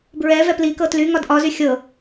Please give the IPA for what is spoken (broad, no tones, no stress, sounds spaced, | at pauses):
b ɹ ɛ v ɛ p l i k ɤ t l y ŋ ɒ d ʔ ɒ z y xʲ ɤ